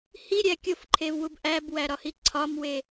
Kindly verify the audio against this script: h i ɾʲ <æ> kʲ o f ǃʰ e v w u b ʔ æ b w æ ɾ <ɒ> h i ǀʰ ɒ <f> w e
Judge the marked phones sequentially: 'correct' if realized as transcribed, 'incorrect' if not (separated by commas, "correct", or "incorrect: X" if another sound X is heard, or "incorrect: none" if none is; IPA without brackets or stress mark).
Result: correct, correct, incorrect: m